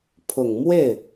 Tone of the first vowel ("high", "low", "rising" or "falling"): low